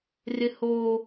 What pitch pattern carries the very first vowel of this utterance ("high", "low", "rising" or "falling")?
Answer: high